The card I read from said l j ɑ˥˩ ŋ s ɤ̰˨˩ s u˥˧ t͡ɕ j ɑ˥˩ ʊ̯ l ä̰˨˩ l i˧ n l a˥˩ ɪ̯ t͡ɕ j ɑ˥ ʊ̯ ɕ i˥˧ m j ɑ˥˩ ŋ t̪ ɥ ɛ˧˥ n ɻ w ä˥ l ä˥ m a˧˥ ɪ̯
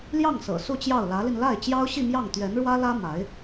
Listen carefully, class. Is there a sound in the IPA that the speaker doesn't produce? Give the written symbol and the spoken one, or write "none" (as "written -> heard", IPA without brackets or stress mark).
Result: ä̰˨˩ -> ä˧˥